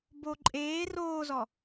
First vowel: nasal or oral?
oral